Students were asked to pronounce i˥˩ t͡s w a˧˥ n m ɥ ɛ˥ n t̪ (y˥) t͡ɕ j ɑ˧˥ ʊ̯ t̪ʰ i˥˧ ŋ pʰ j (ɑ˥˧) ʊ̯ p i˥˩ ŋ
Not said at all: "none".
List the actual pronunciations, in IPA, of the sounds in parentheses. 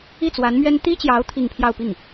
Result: i˥, ɑ˥˧

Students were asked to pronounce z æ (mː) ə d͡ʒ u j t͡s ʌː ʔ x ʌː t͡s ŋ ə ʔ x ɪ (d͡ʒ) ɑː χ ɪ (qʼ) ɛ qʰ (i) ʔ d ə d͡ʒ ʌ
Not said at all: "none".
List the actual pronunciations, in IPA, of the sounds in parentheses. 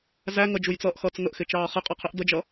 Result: ŋ, t͡ʃ, qʼ, i

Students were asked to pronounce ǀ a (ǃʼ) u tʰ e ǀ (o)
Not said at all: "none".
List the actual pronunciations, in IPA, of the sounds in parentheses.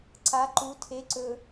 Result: ǃ, ɵ

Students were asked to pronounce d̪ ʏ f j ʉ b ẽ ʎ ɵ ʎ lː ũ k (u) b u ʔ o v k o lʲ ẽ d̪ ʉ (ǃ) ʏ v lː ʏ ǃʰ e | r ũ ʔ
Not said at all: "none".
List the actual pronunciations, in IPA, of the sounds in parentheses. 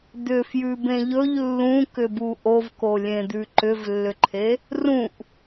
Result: ʏ, ǃ

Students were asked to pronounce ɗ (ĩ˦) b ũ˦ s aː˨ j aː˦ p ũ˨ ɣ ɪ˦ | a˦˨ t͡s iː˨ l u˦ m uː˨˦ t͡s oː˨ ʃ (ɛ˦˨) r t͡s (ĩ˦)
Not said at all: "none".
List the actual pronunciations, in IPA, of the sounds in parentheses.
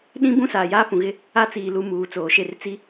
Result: ĩ˦, e˦˨, i˦

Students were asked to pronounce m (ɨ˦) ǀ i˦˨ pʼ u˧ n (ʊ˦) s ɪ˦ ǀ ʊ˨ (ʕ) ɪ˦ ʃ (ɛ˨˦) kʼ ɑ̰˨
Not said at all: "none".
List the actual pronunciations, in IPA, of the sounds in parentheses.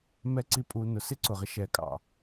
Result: ɛ˦, ʊ˨, ʁ, ɛ˨

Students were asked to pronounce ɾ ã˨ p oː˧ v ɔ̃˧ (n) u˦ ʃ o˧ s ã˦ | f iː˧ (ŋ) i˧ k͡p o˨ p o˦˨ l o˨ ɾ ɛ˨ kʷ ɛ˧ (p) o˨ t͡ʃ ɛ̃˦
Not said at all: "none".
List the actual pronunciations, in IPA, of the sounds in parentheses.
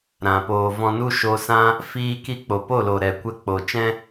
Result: n, k, k͡p

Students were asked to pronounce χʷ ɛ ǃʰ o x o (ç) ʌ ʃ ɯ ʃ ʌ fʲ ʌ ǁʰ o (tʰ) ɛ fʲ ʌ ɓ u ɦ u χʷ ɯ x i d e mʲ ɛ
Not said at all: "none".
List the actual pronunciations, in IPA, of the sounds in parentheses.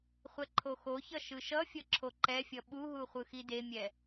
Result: ç, ǃ

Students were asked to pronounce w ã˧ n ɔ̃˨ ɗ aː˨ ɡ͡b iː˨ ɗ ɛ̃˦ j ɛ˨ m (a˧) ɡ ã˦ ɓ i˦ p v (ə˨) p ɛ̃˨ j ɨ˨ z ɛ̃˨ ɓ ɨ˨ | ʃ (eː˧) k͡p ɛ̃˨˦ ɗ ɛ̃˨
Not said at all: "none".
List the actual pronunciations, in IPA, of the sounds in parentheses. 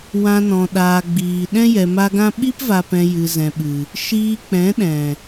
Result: a˧, a˨, iː˧

